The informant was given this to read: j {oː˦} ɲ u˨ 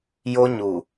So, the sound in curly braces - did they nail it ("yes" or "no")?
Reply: no